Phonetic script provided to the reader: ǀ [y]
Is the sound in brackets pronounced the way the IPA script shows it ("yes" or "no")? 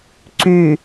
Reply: yes